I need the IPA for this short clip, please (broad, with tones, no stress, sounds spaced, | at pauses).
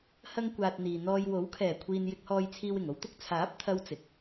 h ɐ˧ ŋ kʷ aː˨ t̚ n̪ iː˨ n̪ ɔː˧ j w o˨˥ w kʰ ɛː˨˩ kʷʰ iː˨ n j ɪ˨ k̚ h ɔː˨ j t͡sʰ iː˨ w ɪ˨˩ ŋ o˧ w t̪ ʊ˥ k̚ t͡sʰ aː˨˥ p̚ t̪ʰ ɐ˥ w t͡s ɪ˨ k̚